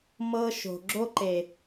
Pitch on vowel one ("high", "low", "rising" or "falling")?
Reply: high